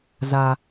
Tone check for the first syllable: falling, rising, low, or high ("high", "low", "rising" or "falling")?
low